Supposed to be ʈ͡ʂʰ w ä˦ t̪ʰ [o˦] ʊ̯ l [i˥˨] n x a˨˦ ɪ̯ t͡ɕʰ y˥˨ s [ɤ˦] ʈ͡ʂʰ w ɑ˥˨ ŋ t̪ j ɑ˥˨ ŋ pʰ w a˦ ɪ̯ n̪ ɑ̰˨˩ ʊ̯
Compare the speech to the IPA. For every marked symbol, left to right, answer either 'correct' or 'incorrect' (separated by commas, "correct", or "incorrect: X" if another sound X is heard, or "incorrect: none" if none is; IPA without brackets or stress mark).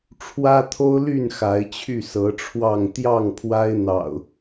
correct, incorrect: y˥˨, incorrect: ɤ˨˦